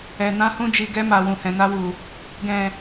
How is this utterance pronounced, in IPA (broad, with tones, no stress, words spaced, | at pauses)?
ɛ˨ nã˧hũ˧d͡ʒi˨ɡɛ˧ ma˨ wũ˨hɛ̃˨na˧wu˨ | ɡɛ̃˨